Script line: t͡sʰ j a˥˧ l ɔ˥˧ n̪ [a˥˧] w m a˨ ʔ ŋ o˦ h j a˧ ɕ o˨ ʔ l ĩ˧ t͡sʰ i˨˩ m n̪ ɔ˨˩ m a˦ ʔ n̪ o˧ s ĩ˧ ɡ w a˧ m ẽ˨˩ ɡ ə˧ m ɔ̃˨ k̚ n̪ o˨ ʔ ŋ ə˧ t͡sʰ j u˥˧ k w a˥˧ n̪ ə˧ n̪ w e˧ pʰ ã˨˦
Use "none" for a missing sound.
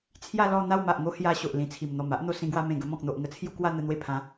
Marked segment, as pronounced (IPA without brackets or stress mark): a˥˧